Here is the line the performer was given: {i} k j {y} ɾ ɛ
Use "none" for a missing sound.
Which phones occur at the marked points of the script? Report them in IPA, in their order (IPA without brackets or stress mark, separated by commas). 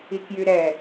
i, y